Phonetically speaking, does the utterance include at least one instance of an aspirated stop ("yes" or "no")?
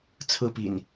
yes